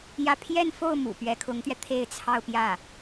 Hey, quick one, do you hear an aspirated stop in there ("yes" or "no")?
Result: yes